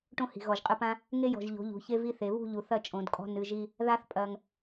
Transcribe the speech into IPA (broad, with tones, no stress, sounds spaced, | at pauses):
ʈ õ˦ h i̤˨ ɣ ɔ˨ ʒ qʼ ɨ˧ p ã˦ | ŋ e˦ j ɔ̤˨ ʒ ʎ o̤˨˦ ʎ ṳ˨ ç e˦ v i˦ θ e˨˦ β ṳ˦˨ ʎ u˨ θ ɐ˦˨ t͡ʃʼ õ˨˦ d kʼ ɔ̤˦ n ɨ˧ ʒ i˦ | ð a˧ θ pʼ ɐ˨ ŋ